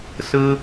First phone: s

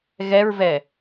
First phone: ɣ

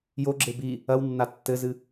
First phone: j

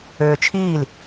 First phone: øː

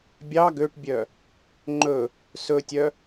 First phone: bʲ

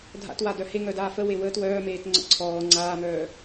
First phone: dʱ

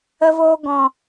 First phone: ə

